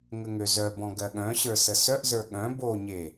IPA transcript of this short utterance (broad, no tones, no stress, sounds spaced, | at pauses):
ŋ ə ŋ ø z œ b ɔ̃ ɡ ɜ ɠ œ̃ ɕ ə˞ s ə s œ ʔ z ə˞ ɠ œ̃ b o ɲ e